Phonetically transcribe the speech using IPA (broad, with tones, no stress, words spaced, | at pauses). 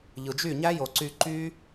ʎɯ˨d͡ʒy˦˨ɲæ˦ jo˨ǀy˧ ǃy˦